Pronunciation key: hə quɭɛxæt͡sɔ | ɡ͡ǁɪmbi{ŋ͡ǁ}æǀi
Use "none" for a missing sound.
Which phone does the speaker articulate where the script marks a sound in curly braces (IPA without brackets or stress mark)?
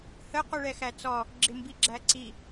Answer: ɡ͡ǁ